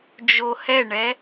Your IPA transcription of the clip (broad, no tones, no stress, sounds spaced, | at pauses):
d͡ʒ o h ɛ ɳ ɛ